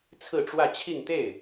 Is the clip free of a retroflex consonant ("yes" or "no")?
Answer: no